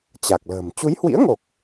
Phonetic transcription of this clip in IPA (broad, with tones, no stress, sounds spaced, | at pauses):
t͡ɕ a˨˩ k̚ l ə̤ː˨˩ m t͡ɕ u˨˦ j h w ḭ˧˥ ə̯ ŋ o˨˩ k̚